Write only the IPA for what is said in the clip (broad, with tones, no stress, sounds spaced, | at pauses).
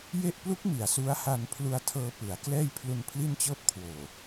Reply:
j e˥˩ ʔ p l u˦˥ k̚ m i˨˩ a̯ s u˦˥ a̯ h a˧ n pʰ l u˧ a̯ tʰ ɤː˧ p ɯ˩˦ a̯ k l ɛː˥˩ j pʰ l u˧ n pʰ l i˥˩ n t͡ɕ ɤː˥˩ p̚ kʰ w oː˨˩